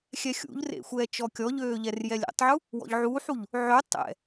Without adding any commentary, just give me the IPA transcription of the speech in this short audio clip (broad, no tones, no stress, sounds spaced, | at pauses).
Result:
xʲ ɛ xʲ ṵ ʎ r ḛ xʷ ɛː t͡ʃ ɔ kʲ ɔ ʎ øː ʎ ɛ r j ɛ lʲ ḛ tˤ ʕ u | w ɔ̰ ʎ ʕ uː ħ u ʎ | ʕ ø tˤ ɛ̰